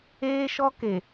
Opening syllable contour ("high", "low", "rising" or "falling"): high